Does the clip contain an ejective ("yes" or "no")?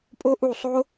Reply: yes